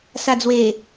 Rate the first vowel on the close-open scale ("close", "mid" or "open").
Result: open